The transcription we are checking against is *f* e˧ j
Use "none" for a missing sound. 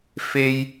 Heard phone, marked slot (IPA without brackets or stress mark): f